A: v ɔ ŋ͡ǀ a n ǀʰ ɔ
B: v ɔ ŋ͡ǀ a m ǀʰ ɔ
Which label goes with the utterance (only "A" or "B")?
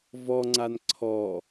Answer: A